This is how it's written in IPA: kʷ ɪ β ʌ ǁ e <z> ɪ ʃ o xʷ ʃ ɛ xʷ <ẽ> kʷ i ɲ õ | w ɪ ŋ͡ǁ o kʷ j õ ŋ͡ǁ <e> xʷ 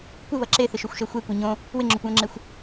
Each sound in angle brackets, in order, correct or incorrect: incorrect: θ, incorrect: e, correct

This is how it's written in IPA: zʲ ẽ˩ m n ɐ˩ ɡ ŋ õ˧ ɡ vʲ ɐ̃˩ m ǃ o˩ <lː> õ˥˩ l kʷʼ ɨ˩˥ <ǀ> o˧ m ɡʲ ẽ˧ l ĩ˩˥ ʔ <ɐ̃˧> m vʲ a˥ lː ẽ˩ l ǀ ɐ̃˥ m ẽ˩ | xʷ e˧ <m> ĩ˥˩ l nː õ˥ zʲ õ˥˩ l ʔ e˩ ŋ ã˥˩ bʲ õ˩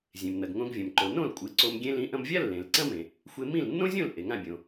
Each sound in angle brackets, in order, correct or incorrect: incorrect: n, correct, correct, correct

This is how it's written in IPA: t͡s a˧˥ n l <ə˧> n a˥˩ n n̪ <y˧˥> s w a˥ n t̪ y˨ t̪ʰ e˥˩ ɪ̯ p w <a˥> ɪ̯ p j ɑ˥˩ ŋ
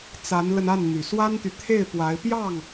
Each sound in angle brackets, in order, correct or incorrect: correct, incorrect: y˨˩, incorrect: a˧˥

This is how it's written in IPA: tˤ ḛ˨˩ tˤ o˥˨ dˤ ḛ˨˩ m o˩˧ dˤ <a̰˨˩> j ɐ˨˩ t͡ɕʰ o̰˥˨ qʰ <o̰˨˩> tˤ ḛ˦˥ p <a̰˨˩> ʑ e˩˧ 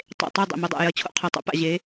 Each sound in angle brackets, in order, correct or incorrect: correct, incorrect: o˨˩, correct

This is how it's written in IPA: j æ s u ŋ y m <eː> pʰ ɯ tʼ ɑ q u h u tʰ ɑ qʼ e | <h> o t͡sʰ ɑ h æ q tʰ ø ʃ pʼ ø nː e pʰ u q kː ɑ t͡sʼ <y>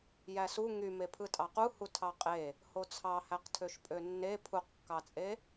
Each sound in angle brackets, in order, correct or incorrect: incorrect: e, correct, incorrect: e

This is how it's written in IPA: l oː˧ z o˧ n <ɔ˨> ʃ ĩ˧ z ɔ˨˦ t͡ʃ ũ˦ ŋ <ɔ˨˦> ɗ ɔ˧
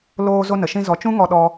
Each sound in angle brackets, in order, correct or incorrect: incorrect: ə˨, incorrect: ɔ˧

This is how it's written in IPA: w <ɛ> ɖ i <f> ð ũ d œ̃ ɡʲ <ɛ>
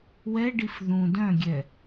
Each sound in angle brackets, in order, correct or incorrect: correct, correct, correct

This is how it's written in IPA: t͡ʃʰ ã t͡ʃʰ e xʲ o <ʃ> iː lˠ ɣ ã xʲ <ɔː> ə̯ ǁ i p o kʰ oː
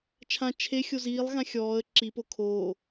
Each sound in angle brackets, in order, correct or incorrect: incorrect: z, correct

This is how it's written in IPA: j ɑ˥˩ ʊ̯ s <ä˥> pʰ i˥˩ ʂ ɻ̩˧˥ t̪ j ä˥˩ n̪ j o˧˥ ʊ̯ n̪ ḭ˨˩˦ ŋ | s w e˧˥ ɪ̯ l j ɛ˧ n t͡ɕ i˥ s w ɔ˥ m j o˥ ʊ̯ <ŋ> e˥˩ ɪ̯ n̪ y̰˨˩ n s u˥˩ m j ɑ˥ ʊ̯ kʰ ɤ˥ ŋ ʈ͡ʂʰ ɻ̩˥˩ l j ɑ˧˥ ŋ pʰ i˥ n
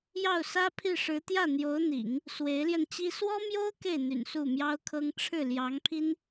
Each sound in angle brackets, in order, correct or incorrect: correct, incorrect: k

